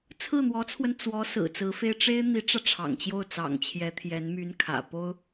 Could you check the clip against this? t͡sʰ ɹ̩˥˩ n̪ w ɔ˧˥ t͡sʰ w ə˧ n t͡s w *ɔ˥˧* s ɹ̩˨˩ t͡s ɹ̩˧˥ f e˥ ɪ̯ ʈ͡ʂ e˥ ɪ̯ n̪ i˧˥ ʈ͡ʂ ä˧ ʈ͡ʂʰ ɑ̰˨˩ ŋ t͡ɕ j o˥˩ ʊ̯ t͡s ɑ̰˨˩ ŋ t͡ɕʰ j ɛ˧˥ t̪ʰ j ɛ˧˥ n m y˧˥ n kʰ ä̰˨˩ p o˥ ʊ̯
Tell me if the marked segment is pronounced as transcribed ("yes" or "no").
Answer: no